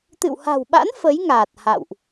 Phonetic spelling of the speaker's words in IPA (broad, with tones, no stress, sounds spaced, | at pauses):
t̪ ɨ̰˧˨ w h a̤˨˩ w ɓ a̰˧˥ n f ə˨˦ j ŋ aː˨˩ t̚ h a̰˧˨ w ʔ